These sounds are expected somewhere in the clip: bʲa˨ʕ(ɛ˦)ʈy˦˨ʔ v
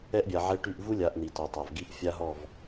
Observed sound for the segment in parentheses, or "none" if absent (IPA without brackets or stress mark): ɛ˦